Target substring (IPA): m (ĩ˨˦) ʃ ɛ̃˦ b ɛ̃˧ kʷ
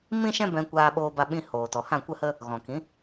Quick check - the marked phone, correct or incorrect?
incorrect